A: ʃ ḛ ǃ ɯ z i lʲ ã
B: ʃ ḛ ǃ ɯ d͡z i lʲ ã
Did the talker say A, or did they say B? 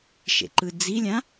B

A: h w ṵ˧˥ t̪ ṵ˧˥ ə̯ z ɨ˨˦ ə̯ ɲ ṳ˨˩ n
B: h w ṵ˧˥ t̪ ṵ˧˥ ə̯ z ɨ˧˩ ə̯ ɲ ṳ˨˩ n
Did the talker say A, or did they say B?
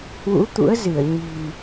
B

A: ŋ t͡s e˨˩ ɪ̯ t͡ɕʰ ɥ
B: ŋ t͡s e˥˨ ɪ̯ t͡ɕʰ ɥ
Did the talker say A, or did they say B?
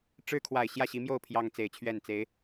A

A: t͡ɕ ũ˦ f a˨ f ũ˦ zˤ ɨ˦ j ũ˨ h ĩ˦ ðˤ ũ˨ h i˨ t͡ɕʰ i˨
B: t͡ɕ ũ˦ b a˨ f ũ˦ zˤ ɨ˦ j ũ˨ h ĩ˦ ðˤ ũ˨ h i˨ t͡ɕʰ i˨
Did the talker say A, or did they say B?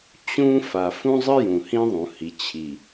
A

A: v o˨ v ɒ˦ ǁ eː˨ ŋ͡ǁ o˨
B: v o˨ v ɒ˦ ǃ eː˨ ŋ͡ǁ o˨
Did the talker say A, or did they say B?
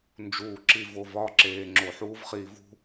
A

